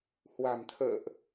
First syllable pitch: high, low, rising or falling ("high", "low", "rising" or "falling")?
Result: low